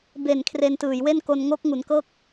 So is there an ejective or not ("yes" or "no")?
no